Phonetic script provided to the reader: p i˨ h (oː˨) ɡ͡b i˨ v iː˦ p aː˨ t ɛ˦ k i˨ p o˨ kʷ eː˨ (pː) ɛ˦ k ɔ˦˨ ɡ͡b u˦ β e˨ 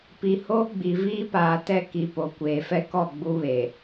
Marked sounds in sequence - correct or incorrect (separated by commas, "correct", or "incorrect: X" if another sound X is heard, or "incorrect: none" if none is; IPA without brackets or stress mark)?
incorrect: oː˦, incorrect: f